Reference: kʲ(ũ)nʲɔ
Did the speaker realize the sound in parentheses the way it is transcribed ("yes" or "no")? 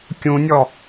yes